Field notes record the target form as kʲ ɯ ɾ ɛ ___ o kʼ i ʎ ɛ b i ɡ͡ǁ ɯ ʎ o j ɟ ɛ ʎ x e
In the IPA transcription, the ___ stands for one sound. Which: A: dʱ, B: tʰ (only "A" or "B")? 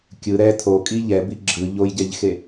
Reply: B